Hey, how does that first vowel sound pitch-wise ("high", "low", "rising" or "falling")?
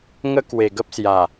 high